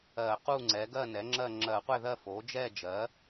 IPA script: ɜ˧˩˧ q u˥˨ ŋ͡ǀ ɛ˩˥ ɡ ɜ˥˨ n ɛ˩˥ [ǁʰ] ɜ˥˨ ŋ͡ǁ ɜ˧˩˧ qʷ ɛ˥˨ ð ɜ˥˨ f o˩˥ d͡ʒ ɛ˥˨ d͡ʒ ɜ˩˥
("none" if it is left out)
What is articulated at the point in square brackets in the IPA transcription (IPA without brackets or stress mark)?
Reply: ŋ͡ǁ